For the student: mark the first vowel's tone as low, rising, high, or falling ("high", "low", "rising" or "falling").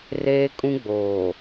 high